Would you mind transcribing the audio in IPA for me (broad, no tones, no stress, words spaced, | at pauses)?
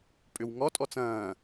pʼʏwŋɔtʼɔ t͡sɐ̃ː